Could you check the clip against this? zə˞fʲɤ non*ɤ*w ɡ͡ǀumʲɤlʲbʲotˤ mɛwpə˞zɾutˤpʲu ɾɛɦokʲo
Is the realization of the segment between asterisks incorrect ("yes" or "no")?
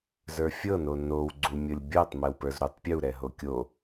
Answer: yes